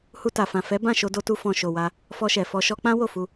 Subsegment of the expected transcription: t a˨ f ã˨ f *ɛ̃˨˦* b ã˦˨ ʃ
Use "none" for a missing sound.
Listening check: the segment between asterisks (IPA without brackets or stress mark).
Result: ɛ˨˦